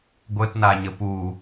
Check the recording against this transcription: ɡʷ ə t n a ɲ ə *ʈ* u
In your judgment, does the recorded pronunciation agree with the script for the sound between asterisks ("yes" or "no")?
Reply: no